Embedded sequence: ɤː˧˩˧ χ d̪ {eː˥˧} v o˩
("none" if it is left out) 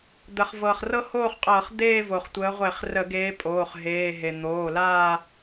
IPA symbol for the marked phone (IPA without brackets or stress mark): eː˥˧